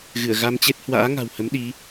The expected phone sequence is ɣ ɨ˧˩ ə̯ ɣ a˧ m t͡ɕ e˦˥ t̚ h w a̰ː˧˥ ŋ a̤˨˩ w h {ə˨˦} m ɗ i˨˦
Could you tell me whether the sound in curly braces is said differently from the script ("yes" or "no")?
no